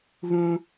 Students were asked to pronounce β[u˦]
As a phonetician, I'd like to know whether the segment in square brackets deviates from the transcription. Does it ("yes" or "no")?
yes